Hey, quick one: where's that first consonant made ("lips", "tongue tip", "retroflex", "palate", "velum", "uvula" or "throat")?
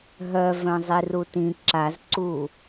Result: throat